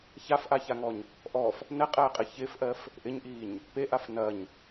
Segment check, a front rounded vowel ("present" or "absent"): absent